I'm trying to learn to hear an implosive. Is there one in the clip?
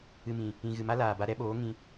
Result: yes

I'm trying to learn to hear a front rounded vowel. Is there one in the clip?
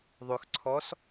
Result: yes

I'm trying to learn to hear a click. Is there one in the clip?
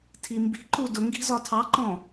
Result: yes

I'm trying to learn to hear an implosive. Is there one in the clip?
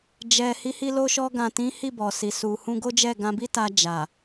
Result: no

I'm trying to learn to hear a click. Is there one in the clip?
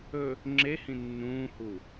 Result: yes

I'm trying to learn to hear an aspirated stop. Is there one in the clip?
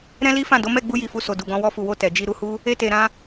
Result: no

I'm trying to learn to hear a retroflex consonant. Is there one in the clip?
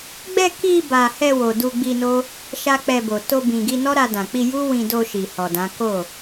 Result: no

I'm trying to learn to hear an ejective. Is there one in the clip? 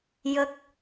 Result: no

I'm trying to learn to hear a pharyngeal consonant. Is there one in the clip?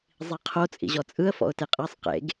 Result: no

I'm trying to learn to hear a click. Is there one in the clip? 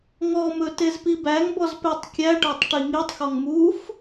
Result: no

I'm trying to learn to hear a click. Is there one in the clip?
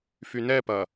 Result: no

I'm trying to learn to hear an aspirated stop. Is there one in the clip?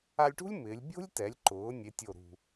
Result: no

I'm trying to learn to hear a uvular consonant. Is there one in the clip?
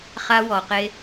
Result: yes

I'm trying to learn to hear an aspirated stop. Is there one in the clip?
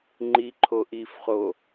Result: yes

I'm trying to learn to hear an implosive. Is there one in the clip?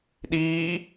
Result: yes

